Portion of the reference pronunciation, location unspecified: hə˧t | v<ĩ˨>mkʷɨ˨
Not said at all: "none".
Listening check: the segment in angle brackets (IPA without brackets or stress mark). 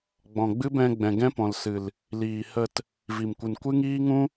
i˨